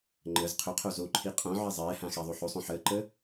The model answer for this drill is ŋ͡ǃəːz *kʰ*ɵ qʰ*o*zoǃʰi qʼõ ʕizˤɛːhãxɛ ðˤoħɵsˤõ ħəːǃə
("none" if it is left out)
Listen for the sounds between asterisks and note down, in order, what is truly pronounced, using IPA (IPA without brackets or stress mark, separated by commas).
qʰ, o